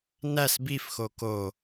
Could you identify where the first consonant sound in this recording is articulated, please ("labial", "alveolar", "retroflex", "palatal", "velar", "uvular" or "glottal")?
alveolar